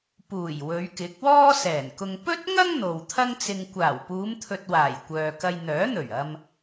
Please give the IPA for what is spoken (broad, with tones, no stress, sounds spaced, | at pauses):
p uː˨˩ j w ɵ˨˧ ɥ k ɪ˨˥ k̚ w ɔː˥ s ɛː˨˩ n k ʊ˧ ŋ p ɵ˥ t̚ ŋ ɐ˥ ŋ n̪ o˨ w t̪ʰ ɐ˥ ŋ t͡s ɪ˧ ŋ kʷ aː˨˩ w p uː˨˧ m t̪ʰ ɵ˨ t̚ w aː˨˩ j kʷ œː˨ k ɐ˧ j n̪ œː˨˥ n̪ ɵ˨˩ ɥ ɐ˧ m